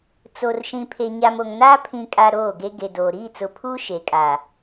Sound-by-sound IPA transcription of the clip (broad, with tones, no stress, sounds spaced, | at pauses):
t͡s o˨ r ʃ ĩ˨ pʰ e˨ ɲ a˨ m o˨ ŋ n aː˦ pʰ ĩ˨ kʼ a˨ ɾ oː˦˨ ɡ e˦ ɡ e˨ d oː˨ ɾ iː˦˨ t͡s ʊ˨˦ pʰ uː˦ ʃ e˨ kʼ a˨